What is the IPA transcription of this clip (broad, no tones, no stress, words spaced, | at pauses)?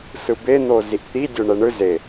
sɯben̪o ziʔt̪i dʲoɳɛɳɯ ze